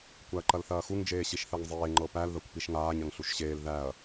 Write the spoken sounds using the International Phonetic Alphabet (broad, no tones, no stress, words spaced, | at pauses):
kʷæɐ̯ǃɐlθɐːxuŋ d͡ʒeːɕiʃθɜŋzˤeː ŋ͡ǃɤpæl ðɐkʷpiʃŋaːɲ ɐŋɬuʃɕeːl ðæɐ̯